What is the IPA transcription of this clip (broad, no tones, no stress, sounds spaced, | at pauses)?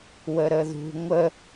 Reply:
w ə ɾ ə ð ṳ ŋʷ ə